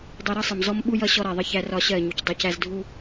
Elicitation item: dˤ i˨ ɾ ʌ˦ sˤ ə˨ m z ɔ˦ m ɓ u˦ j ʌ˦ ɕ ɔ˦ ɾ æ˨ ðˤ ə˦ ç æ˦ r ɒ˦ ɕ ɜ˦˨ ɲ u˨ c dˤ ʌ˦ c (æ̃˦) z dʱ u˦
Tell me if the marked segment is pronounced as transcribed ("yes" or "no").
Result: no